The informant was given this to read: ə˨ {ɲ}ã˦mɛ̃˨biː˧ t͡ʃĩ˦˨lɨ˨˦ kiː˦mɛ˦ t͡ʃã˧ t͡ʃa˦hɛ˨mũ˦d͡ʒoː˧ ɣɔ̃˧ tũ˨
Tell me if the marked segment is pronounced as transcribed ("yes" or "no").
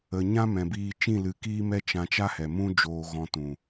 yes